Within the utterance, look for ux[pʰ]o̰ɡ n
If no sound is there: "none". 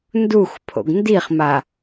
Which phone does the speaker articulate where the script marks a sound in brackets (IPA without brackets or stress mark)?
pʰ